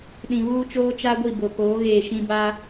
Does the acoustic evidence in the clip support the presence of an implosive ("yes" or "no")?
yes